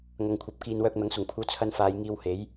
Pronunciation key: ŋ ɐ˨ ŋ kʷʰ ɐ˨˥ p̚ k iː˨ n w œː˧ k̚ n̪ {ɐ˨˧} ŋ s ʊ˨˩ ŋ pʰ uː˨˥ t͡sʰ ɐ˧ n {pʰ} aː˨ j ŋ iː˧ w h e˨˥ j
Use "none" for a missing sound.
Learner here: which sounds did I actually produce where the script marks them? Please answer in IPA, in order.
ɐ˨˥, f

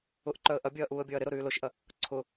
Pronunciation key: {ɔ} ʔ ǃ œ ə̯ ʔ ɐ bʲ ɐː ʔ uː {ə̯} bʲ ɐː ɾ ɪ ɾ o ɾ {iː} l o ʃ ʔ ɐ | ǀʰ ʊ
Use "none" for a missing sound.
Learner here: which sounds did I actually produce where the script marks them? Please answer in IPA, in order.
ʊ, ə̯, yː

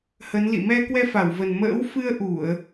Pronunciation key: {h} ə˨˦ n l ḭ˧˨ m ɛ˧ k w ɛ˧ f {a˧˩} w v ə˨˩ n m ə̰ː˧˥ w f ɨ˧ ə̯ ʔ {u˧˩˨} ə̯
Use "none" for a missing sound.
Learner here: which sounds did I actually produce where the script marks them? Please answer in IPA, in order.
h, a˧˩, u˧˩˨

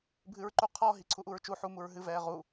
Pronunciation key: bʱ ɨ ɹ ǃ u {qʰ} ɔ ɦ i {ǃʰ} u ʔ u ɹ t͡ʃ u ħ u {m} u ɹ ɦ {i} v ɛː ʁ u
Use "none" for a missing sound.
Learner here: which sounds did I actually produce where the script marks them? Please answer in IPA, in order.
qʰ, ǀʰ, m, ɨ

